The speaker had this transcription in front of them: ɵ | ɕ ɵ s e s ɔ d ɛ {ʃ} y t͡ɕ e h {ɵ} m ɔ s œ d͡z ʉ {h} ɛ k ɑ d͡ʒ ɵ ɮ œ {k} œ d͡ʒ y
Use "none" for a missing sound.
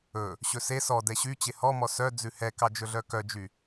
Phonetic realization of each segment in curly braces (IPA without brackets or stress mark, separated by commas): ɕ, ɔ, h, k